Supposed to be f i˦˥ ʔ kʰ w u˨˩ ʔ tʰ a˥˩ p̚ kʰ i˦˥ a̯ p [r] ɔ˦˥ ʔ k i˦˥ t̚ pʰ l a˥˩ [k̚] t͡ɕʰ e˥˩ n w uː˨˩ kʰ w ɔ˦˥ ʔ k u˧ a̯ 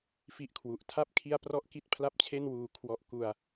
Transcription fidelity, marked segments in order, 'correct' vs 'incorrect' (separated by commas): correct, incorrect